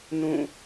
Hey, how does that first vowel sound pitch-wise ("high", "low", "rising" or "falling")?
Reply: falling